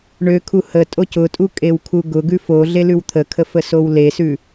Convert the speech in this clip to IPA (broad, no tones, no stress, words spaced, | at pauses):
ɳøkʰu hətʼo cʊtʼukʼewkʰu ɡʊɡʉ foɮelʉw t̪ʰəkʰəfəsow lesʉ